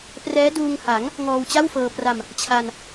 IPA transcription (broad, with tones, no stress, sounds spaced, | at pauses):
p r ɛː˦˥ d uː˧ ŋ h a˩˦ ŋ | ŋ ɔː˧ w t͡ɕ a˥˩ w f ɤː˧ p r a˧ m | t͡ɕʰ a˧ n